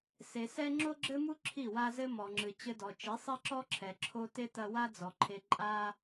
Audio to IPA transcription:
se˨sɛ˦ ŋ͡ǁo˦ɡ͡ǁɘ˦mu˦ ǁʰi˦˨wa˦zɘ˦ mɔ˨ŋ͡ǁɨ˨ t͡ɕɘ˧dɔ˨t͡ʃi˨˦ sˤɛ˦ǁɔ˦ǁʰɛ˨ ǁʰo˦ te˦tɐ˧wa˦ d͡zɔ˨ǃʰe˧ ǃʼa˦

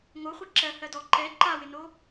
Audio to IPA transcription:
ŋoχʷi ǁɜ hɜdɔ ǃɛ ǃawɪno

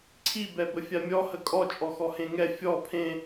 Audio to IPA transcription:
ǀʰi bɛbəfʲamʲɔ həkʼɔ t͡ʃʼɔxɔhẽŋɛ fʲɔ pʰẽ

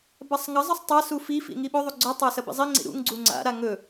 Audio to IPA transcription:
basˤŋɐzˤɨsˤ tˤasu fifḭ ŋiɓɵðˤu ɡ͡ǀɵtˤa sɐbḭzˤiŋ͡ǀḭ ɾṵŋ ɡ͡ǀuŋ͡ǀa̰ɾa ŋɵ

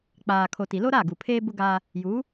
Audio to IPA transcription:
k͡paː˨kʰo˨ ti˨lo˦ɾa˦˨ ɡu˨pʰeː˦bʊ˦ ɡaː˦ | juː˨˦

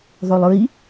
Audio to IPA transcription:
ðˤolˠɹi

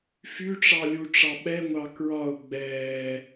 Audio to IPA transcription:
fyʈ͡ʂɑ lʲuʈ͡ʂɑɓɛŋʷɑ kɹɒʊ̯ ɡ͡bɛː

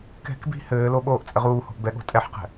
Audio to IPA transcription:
kɛ̤k bi̤ hɘːlo ɓoːʔt͡sʼɘʁuːho̤ʔ bɛɠo̤tʼɛħqɛ̤

